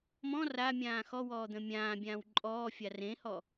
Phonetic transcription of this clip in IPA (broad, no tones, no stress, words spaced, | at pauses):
mɔ̃ ramʲãː xɔwɔː d̪ə̃mʲãːbʲãːw ǃʼɔːfʲa rẽhɔ